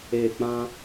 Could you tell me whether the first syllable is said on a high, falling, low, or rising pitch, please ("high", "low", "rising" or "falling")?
falling